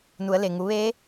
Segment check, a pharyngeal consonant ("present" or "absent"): absent